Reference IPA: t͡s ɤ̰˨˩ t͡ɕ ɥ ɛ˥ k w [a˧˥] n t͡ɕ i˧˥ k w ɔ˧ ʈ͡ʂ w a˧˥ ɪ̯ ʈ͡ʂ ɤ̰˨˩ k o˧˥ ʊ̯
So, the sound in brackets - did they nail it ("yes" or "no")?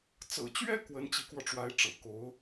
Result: no